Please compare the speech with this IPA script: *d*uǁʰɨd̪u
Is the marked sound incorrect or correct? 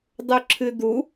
incorrect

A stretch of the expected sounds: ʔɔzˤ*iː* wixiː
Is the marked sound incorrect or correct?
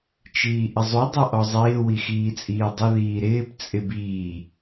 incorrect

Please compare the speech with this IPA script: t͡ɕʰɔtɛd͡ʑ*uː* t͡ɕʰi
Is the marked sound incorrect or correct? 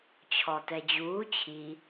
correct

